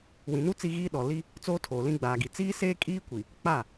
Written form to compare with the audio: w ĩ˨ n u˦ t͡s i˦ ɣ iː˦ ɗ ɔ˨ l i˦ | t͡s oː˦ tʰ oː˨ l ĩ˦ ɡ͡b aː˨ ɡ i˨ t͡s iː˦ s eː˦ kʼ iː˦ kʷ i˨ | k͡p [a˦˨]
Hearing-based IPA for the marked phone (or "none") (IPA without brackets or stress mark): a˦˨